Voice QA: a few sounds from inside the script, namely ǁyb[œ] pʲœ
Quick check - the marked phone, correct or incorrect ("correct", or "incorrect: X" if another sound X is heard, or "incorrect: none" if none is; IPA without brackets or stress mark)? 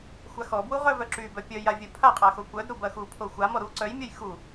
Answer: correct